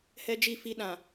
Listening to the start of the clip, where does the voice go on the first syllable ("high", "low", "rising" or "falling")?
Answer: high